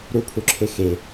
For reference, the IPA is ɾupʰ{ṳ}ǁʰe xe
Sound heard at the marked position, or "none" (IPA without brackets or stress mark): u